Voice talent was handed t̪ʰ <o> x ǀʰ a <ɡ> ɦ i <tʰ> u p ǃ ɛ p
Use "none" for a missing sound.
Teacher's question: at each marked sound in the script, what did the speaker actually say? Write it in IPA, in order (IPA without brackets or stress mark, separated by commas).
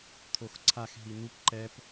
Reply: o, x, n̪